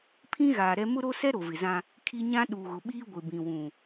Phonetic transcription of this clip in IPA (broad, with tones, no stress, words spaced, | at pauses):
pʰĩ˦ ɣaː˨ɾɛ˦ mʊ˦ɾo˦sɛ˦ ɾo˨vɪ˨zã˦ | kʰi˦ ɲã˦ ɗuː˨ɣʊ˨ɓiː˦ ɡʷɪ˨bĩ˨wũ˨